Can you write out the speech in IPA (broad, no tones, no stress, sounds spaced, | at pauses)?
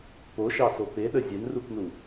p o ʃ ɑ s o p e ɗ ə zʲ ɛ n r u k n u